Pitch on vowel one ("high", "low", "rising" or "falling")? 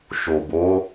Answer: low